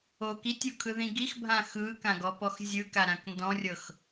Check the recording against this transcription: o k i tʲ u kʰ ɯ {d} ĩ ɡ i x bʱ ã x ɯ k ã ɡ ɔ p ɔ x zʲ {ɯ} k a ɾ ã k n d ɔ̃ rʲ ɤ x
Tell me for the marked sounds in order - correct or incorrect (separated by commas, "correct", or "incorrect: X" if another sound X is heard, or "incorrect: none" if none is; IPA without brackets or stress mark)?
incorrect: ð, correct